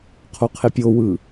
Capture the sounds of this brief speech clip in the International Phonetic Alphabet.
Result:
qʰoqʰepʲowɯ

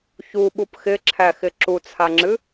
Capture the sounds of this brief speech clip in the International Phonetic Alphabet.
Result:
çuɓup xɪǁʰæxɪ ǁut͡sʰaŋ͡ǁɨ

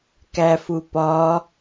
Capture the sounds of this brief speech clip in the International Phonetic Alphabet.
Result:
kæfupɒ

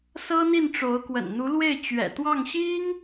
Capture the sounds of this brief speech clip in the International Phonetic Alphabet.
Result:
sɤ˥n̪i˥˩nʈ͡ʂo˧˥ʊ̯ kwə̰˨˩n n̪u˧˥lwe˥˩ɪ̯ t͡ɕɥɛ̰˨˩ t̪wɑ˥˩ŋɕi˥ŋ

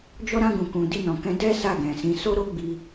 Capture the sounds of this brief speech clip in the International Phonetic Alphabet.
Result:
d͡ʒɔ˦ɾã˦ ɡũ˧kũ˧ di˧nɔ̃˨kɛ̃˧ dɛ˦ sa˦˨ɡɛ̃˨sĩ˧ so˦ɾo˦ ɡ͡bi˦

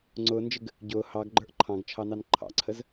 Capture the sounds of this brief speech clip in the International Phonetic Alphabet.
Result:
ŋ͡ǀʊːnd͡ʒɪɡ | ɟʊː hɑɡɡ͡ǃə˞ʔ ǃʰɑ̃ɡt͡ʃʰɑnɑn ǃʰɑ̰ǀʰəz

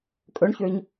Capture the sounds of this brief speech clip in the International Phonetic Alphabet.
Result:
kʼɵɳçøɲ

